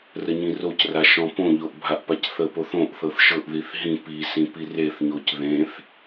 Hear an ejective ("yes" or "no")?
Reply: no